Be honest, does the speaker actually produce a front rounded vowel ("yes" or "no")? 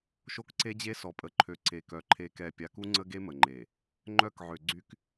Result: yes